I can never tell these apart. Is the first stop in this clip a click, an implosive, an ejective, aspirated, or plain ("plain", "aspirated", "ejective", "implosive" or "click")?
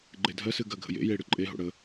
click